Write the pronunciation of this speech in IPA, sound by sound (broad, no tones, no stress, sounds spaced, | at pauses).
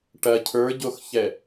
ʈ ɐ cʰ ə˞ ɟ o x ç ɛ